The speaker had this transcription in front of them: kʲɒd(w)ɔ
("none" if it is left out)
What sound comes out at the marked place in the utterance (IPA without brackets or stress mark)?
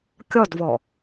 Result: v